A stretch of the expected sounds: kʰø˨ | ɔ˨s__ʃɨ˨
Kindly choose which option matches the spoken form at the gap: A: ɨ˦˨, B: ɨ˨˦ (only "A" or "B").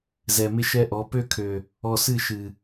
A